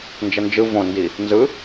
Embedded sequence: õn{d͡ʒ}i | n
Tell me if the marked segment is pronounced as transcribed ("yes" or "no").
no